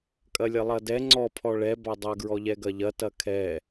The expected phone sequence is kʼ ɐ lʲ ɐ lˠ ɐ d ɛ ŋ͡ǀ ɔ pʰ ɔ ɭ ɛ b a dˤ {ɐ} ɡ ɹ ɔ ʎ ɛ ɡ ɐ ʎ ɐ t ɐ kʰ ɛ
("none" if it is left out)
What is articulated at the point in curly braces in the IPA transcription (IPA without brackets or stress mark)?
ɐ